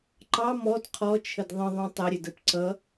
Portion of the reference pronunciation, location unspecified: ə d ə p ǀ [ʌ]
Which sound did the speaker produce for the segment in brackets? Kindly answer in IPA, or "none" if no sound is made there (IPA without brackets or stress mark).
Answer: ʌ